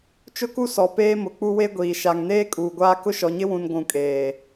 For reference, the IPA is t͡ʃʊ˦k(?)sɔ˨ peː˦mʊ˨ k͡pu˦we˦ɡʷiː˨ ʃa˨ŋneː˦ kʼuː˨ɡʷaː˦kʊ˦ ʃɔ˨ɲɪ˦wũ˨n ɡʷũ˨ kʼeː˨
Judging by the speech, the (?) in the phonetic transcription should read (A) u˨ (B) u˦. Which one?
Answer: B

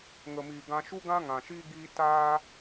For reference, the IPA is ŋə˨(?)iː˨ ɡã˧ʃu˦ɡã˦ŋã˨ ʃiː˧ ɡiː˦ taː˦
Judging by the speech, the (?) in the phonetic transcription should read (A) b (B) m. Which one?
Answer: B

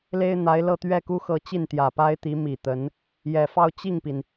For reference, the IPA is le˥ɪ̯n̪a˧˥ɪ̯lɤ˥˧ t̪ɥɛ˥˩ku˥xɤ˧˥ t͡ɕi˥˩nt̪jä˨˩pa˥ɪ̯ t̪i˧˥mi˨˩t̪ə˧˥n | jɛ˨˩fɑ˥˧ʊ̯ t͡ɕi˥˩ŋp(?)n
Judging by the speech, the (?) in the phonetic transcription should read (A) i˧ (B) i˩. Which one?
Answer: B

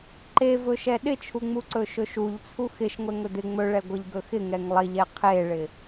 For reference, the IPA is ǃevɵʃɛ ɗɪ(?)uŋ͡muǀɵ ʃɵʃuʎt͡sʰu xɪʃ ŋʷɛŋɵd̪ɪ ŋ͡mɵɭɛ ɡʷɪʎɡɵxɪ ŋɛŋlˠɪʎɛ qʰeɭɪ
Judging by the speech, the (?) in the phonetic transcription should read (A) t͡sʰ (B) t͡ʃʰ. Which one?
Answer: B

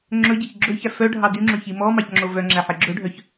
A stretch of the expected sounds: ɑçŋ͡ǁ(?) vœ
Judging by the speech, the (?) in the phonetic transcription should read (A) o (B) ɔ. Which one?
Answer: A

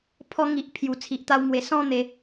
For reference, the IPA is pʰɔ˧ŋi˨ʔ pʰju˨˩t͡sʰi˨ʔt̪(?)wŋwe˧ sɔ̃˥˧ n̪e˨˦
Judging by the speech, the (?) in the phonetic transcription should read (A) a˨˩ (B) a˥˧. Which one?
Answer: B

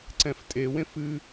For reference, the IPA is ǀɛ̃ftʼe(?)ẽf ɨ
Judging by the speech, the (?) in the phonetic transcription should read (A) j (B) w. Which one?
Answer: B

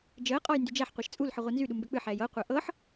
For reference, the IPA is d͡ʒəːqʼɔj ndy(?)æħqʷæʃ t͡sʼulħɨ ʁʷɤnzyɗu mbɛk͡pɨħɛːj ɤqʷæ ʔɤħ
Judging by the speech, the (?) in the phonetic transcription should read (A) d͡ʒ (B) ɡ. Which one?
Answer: A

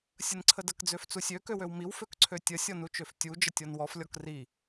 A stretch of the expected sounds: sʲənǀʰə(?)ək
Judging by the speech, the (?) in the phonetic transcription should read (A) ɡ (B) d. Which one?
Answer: B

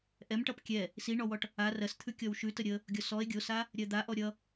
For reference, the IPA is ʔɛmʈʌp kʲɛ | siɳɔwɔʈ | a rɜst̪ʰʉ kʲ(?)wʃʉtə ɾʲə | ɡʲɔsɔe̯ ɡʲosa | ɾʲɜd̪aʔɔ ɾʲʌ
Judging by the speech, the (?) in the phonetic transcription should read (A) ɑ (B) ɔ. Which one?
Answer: B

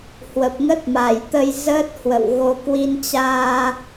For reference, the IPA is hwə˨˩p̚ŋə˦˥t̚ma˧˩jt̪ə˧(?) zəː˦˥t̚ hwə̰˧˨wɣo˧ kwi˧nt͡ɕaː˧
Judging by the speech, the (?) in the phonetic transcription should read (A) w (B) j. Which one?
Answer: B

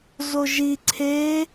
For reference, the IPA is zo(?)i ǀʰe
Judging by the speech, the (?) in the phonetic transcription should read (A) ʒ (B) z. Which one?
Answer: A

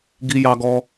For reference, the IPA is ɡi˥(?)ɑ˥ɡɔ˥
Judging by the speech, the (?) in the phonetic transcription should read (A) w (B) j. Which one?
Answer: B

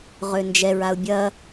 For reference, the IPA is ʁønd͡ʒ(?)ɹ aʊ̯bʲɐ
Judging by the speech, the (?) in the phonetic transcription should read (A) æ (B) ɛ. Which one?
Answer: B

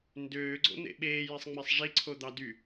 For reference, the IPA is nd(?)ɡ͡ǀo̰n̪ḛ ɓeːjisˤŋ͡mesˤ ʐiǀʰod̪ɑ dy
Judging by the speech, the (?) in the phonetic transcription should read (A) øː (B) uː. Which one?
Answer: A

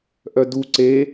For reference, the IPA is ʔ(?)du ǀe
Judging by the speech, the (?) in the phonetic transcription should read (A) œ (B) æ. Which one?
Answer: A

